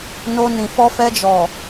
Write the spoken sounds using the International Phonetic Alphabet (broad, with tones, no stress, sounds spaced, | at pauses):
n o˧ n ĩ˨ f ɔ˧ f ɛ˧ d͡ʒ ɔ˨